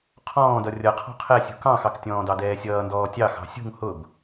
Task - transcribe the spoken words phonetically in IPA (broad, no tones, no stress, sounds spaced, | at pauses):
qʰ ɔ̃ː d ʌ rʲ ʌ qʰ ɔ̤ qʰ ɛ sʲ ṳ k ɑ̃ x ɑ k tʲ ɔ̃ː d ɑ d ɛː sʲ ʌː n d ɔː tʲ ɑ x ɑ̤ sʲ ṳ ŋ h ʊ b